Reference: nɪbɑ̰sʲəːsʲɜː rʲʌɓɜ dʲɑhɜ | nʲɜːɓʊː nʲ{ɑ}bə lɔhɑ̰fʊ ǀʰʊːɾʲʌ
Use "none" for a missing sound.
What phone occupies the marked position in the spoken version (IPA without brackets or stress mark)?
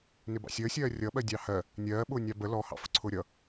ɑ